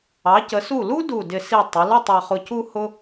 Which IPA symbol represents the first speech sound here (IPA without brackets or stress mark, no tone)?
ɑ